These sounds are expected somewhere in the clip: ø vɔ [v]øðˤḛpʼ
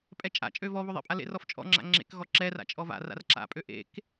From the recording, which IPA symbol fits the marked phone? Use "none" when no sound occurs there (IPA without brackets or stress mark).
β